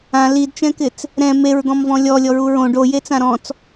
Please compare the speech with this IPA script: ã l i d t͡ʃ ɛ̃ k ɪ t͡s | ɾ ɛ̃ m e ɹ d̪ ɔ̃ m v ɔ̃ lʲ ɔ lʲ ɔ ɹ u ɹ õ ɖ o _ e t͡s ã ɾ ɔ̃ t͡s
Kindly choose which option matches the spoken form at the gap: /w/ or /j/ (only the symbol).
j